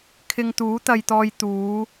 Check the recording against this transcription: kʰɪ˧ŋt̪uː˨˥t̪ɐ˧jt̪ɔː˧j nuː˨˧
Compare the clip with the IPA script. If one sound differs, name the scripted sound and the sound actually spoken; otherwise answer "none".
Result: n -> t̪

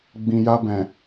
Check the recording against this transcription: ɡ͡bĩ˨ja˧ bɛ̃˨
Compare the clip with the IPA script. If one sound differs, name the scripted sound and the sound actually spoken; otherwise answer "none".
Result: none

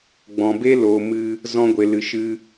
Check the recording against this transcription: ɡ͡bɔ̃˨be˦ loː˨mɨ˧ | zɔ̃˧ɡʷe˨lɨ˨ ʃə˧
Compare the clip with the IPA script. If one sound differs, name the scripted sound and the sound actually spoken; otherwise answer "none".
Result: ə˧ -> ɨ˧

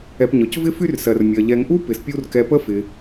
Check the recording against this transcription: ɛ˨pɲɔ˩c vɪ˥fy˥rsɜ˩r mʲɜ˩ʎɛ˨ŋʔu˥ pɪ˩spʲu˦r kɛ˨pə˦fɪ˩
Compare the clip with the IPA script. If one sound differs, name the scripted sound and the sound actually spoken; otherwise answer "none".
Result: none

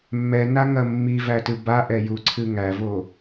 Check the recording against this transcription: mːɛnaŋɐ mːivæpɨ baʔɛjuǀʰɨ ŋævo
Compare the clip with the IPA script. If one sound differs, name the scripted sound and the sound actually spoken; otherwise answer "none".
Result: p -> t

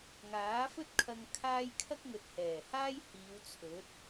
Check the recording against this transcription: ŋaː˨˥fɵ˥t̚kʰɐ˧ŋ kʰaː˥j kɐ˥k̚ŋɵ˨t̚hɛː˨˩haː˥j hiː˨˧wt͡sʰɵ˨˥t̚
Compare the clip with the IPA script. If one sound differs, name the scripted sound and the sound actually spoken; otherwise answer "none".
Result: k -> kʰ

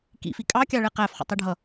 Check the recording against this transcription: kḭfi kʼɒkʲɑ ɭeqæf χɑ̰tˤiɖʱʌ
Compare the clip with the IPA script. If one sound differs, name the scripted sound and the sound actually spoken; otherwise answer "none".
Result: ɒ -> ɑ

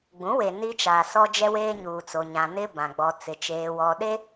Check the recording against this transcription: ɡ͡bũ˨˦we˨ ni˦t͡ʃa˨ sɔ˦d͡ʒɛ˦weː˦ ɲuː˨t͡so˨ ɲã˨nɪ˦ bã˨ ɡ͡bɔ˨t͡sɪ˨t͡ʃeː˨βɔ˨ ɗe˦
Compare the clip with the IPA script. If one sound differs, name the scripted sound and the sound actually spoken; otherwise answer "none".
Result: β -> w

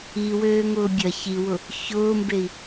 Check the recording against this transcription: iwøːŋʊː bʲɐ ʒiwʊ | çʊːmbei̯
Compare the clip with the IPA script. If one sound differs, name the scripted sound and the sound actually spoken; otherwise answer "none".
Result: ʒ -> ç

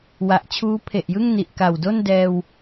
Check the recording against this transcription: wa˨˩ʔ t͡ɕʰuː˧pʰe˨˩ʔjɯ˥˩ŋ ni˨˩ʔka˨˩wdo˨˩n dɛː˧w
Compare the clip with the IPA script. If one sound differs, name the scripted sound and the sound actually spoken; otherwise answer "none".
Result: o˨˩ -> o˥˩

